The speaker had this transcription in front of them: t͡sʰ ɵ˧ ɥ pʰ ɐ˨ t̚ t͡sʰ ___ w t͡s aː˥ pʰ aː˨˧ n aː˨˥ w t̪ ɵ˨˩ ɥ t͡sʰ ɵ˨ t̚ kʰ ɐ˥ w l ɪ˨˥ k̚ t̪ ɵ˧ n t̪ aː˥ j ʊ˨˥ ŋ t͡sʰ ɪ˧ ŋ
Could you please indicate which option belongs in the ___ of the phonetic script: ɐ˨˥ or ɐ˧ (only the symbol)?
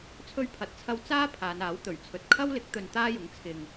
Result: ɐ˧